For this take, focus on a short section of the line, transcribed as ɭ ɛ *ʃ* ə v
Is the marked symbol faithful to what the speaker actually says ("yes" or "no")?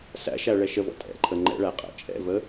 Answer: yes